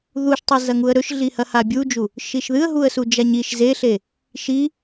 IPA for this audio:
ð u ʃ tˤ e z ɐ ŋ u ə̯ ɾ ɵ ʃ ɮ i h ɐ h a bʲ u d͡ʒ u | ʃ i ʃ ð ɨ ə̯ ɦ u ə̯ s u d͡ʒ a ɲ i ʃ z e ɬ e | ʃ i

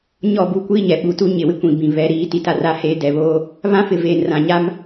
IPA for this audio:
ɲ ɔ˦˨ b u˦˨ kʷ iː˦ ɲ ɛ˨ ɓ u˨ t u˦ ɲ ɪ˨ w ɪ˦ kʷ ĩ˨ b ĩ˨ β ɛ˨˦ ɾ iː˨˦ t i˨ t a˦ r a˦ h eː˦ d ɛ˨ β oː˦ | β ã˦ f ɪ˨ v eː˨ n r ã˨ ɲ a˦ m

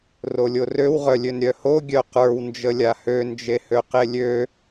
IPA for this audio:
r o lʲ o r ø w ʁ œ lʲ ø n ɾʲ œ h o ɡʲ œ q ə˞ w n d͡ʒ ə lʲ a h ø n d͡ʒ e h ø q e lʲ ø

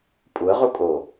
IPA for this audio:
pʼ u ə̯ ʁ u kʼ o

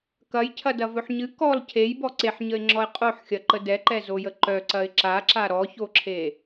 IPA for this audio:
k ɐ j cʰ ɐ d ɐ v ɵ ħ ɲ ɨ k ɔ l cʰ e j b ɔ ǀ e ħ ɲ ə ɪ̯ ŋ͡ǁ ɔ ɪ̯ qʼ o ħ xʲ ɐ ǃ ə d ɛ ǃ ɛ z o j ə ǃ œ ǀ ɐ ɪ̯ ǁ a ǁ a ɾ ɔ ç o ǁʰ e

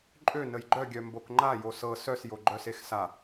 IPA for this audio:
ǃʼ ø n ə j ɡ͡ǃ œ ɡʲ œ m b o k ŋ͡ǃ a j o s ɤ s œ s j o ɡ͡ǃ œ s e x s a

